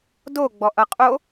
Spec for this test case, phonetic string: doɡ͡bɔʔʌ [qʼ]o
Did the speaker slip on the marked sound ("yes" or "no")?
no